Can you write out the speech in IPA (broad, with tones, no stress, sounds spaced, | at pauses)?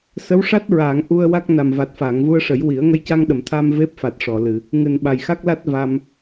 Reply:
s ə˧˥ w ʂ a˦˥ t̚ ɹ aː˨˩˨ ŋ ʔ u˧ ə̯ w a˦˥ k̚ n a˨˩ m v a˨˩ t̚ f aː˨˩˨ ŋ v u˧ ə̯ ʂ ə˨˩˦ j w i˨˩˦ ə̯ ŋ ə˧ j c a˧ ŋ ɗ ə˨˩˨ m t̪ʰ a˧ m v e˦˥ p̚ f a˨˩ t̚ ʂ ɔ˨˩˨ l ɨ˨˩˨ | ŋ ɨ˨˩ n ɓ a˨˩ j x a˦˥ k̚ l a˦˥ t̚ v a˧ m